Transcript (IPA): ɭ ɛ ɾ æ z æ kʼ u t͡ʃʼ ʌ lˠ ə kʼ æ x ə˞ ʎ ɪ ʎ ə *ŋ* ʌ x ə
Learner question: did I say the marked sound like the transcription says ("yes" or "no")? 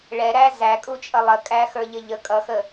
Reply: no